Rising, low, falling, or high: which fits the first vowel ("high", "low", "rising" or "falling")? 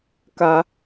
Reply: high